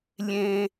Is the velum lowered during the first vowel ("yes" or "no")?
yes